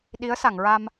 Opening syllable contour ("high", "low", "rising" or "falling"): rising